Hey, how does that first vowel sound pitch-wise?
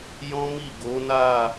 high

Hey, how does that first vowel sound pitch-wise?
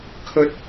high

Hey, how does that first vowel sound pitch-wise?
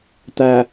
low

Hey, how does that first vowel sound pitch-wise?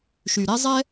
low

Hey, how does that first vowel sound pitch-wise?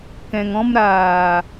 low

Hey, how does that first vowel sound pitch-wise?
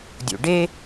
low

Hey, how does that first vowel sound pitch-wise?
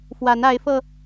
rising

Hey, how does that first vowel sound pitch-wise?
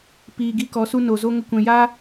low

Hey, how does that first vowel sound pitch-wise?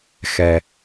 low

